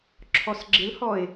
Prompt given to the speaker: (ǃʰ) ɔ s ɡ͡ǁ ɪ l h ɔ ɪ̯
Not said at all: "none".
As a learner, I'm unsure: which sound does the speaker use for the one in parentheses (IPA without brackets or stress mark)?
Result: ǁʰ